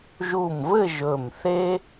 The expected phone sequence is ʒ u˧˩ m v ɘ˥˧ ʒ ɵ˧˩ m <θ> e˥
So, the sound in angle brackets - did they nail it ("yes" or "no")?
yes